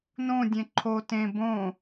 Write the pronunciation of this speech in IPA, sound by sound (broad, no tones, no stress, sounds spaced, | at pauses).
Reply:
n õ dʲ ẽ ǃʰ o t ẽ b õ